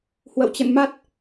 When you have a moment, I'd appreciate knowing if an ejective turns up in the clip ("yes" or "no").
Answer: no